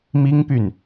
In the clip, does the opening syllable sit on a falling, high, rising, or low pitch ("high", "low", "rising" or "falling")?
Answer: high